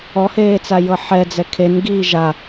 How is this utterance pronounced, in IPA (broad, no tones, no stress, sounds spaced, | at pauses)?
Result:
ɔ h eː t͡s a j ɤ ħ ɛ d͡z ɛ kʰ e n ɡ iː ʒ a